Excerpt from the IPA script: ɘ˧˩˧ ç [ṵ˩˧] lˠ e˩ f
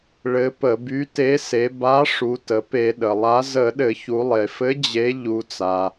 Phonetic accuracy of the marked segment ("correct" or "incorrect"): incorrect